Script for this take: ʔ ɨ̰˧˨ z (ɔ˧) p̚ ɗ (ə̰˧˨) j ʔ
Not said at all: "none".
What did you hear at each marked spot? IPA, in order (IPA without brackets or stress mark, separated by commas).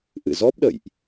ɔ˦˥, ə̰˧˨